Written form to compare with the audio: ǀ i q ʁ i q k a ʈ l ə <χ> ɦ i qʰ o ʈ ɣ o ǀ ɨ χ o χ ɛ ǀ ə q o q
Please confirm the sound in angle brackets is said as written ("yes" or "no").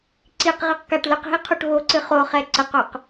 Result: no